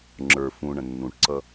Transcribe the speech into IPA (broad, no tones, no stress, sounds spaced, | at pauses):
ŋ͡ǁ ə˞ f ũ ɳ ə̃ nː ũ ʈ ǀ ʌ